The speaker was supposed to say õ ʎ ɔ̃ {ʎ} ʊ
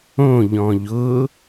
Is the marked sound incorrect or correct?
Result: correct